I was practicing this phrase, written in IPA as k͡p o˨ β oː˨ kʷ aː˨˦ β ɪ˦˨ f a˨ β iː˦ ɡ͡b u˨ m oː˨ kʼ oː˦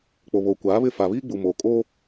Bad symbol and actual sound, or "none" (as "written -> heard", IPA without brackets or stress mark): none